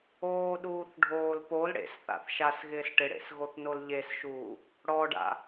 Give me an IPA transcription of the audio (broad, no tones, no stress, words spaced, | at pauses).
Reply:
oːɗuːθɖʱoːl pol ɽḛsθa̰θ ʃasɣɪːs ʈɪɽḛsɣoθnol ʎesʃuː | ɽɔɖa̰